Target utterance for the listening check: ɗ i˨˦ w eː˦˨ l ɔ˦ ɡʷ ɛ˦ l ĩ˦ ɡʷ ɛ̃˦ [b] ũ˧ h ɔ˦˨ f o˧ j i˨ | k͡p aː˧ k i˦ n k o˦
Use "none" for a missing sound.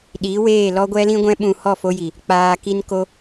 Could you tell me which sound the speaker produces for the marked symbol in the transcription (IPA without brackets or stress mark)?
ɓ